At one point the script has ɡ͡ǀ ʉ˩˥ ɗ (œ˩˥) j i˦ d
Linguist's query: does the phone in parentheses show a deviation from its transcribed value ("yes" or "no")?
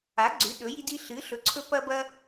yes